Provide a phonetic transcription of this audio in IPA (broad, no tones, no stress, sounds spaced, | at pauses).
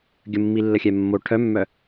ɡʲ ə mː i lː ə xʲ ɛ mː o ʈʰ œ mː œ